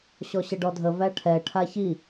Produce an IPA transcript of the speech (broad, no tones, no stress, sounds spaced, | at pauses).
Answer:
ɕ ɔ ɕ ə ɖ ɔ dʱ ə v æ ʈʰ ɛ ʈʰ a ç i